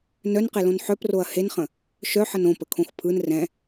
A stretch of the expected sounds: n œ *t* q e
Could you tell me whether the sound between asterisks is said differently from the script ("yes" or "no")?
yes